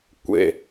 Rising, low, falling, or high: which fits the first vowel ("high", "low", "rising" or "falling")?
low